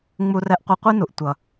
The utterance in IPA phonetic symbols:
ŋ͡m u˦ r ɛ˦ ʔ qʷ e˦ qʷ i˦ n u˨ ʔ tʷ ʌ˨

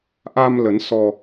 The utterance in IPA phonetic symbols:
ʔ a˧ m l ə˨˦ n s ɔ˧

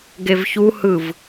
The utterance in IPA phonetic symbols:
ɡ e v ç u h ɯ v

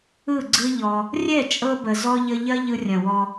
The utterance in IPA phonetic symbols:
ɯ˦˨ ɡ͡ǀ ɯ˦ ʎ ɔ˧ | rʲ ɛ˦˨ t͡ʃʼ ɤ˧ b ə˨ z ɔ˧ ʎ ə˧ ʎ ɐ˦ ʎ ɯ˧ rʲ ɐ̃˨ w ɔ˧

